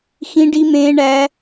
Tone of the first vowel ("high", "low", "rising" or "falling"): high